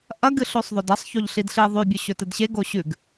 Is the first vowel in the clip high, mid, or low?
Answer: low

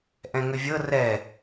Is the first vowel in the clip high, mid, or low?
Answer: mid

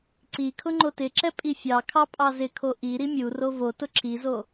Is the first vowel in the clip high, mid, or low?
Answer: high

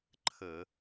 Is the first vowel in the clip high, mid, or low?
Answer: mid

